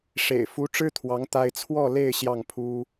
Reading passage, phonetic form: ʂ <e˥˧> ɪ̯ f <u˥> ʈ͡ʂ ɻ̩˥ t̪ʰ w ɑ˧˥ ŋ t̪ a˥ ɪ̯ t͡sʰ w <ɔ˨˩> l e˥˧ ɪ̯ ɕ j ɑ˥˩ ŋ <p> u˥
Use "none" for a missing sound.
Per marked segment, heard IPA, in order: ḛ˨˩, u˧˥, ɔ˥˧, pʰ

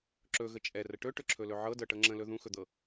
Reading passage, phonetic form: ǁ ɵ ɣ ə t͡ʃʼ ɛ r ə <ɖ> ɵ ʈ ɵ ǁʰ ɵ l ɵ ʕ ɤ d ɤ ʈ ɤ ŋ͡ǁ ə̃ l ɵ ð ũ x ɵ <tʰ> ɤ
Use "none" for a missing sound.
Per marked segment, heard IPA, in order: ʈ, d̪

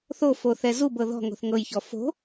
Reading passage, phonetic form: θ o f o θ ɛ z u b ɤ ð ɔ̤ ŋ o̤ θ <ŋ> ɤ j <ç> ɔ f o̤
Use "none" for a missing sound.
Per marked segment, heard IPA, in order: ŋ, ç

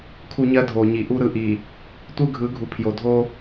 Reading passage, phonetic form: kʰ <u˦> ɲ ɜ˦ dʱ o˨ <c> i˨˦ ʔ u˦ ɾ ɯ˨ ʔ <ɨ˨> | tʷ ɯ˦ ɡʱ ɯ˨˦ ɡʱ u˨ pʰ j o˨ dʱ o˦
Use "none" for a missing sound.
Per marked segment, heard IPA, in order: u˦, ɲ, i˨

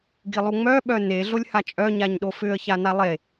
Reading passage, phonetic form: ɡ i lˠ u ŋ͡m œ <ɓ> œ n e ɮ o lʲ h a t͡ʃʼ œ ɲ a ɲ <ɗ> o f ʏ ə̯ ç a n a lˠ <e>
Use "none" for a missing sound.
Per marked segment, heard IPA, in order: ɓ, ɗ, e

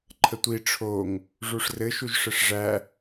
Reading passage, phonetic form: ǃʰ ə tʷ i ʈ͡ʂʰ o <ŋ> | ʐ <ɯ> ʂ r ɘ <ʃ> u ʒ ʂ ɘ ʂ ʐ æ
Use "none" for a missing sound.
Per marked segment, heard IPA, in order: ŋ, u, ʃ

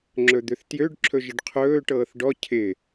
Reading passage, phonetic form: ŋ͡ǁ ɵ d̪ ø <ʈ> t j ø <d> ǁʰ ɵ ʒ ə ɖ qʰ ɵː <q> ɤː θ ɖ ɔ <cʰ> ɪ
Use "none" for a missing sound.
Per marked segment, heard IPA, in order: θ, ɖ, ʈ, cʰ

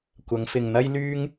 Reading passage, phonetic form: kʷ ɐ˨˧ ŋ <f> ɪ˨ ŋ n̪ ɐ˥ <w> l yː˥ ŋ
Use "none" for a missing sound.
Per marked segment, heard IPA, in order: f, j

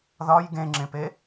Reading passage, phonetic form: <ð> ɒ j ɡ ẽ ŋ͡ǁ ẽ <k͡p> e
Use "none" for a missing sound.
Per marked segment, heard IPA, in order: ð, p

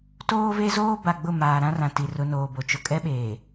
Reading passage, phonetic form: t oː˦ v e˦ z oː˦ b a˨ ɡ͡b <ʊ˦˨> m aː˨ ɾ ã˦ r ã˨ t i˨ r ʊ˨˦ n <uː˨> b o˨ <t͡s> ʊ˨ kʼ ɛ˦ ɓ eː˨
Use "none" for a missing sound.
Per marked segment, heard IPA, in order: ʊ˦˨, oː˨, t͡ʃ

